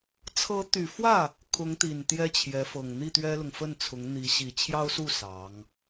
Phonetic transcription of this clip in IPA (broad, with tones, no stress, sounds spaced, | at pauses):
t͡sʰ ɤ˧˥ t̪ y˨˩ f w ä˥˩ | kʰ ʊ˧˥ ŋ t̪ i˨˩ n t̪ j ɛ˥ t͡ɕʰ j ɛ˧˥ f ɤ˨˩ ŋ n̪ i˥˩ t̪ ɥ ɛ˥ l ʊ˨ ŋ f ə˥˩ n t͡sʰ ʊ˧˥ ŋ n̪ i˧˥ ɕ i˨˩ t͡ɕʰ j ɑ˥ ʊ̯ s u˥˩ s ɑ˧˥ ŋ